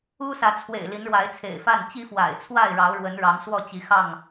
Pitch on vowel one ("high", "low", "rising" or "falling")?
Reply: high